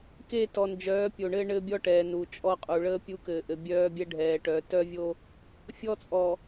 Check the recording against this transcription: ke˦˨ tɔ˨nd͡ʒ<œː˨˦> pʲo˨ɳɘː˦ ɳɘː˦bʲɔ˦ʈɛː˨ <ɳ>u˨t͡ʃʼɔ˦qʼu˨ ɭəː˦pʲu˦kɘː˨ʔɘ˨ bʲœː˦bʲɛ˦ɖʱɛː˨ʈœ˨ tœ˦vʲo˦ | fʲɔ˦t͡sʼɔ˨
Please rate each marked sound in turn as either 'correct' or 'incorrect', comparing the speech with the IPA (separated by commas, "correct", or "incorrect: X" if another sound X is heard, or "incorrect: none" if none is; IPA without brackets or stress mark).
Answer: correct, incorrect: n